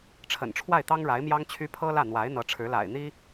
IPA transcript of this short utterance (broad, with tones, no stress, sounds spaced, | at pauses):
ʈ͡ʂʰ ə̰˨˩ n ʈ͡ʂʰ w a˥˩ ɪ̯ t̪ ɑ˥ ŋ ɻ a˧˥ ɪ̯ m j ɑ˥ ŋ t͡ɕʰ y˥ pʰ ɤ˥ l ä˥˩ n̪ w a˧˥ ɪ̯ n̪ ɤ˧˥ ʈ͡ʂʰ ɻ̩˧˥ l a̰˨˩ ɪ̯ n̪ i˥